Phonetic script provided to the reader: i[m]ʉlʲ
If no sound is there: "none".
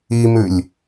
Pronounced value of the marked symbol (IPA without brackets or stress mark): m